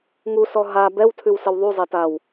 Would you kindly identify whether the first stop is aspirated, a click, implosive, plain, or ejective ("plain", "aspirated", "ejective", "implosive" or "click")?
plain